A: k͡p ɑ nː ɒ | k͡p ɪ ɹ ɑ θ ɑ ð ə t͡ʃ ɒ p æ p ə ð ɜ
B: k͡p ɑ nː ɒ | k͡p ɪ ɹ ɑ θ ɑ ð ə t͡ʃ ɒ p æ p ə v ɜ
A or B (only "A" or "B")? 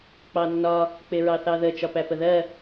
A